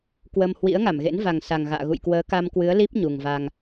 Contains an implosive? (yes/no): no